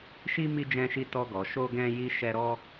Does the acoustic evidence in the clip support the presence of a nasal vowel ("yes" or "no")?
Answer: yes